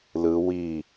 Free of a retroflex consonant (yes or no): yes